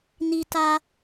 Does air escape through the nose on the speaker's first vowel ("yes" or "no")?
no